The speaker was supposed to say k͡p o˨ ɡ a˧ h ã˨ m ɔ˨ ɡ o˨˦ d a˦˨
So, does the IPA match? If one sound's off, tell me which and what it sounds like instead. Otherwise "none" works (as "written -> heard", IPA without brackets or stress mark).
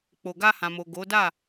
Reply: ɔ˨ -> o˨